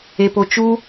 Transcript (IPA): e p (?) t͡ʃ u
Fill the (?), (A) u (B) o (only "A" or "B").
B